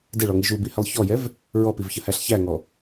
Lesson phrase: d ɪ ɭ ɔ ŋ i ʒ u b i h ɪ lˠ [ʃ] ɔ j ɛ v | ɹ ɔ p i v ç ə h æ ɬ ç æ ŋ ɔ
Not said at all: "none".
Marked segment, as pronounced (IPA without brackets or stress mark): ç